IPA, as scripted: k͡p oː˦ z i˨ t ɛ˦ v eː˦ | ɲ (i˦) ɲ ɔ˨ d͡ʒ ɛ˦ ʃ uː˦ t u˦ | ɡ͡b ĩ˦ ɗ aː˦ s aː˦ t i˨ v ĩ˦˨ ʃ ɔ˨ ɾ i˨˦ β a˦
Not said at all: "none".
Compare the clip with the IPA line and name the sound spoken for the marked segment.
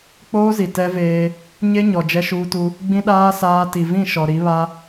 e˦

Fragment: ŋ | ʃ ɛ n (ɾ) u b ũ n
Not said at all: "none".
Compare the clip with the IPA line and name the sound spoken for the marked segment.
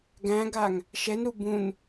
ɾ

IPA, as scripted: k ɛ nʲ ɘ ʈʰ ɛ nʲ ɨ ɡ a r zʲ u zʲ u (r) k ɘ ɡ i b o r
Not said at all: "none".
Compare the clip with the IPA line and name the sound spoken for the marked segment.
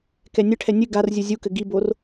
none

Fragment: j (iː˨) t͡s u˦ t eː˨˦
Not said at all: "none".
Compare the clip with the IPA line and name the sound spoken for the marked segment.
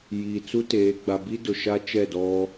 iː˨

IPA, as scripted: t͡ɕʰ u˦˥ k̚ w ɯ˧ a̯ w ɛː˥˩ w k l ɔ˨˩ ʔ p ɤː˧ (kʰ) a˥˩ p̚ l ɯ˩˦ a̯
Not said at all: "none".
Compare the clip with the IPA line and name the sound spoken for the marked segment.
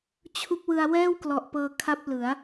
kʰ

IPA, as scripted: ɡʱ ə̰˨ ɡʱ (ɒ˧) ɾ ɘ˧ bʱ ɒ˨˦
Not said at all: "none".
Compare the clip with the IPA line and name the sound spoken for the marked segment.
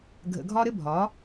ɒ˧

